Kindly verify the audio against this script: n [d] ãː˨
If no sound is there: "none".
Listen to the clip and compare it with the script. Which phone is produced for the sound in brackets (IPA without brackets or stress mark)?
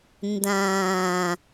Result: d